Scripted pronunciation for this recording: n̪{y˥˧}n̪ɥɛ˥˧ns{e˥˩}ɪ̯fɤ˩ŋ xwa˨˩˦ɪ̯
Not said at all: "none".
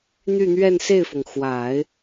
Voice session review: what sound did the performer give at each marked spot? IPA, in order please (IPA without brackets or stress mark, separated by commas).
y˥˧, e˥˩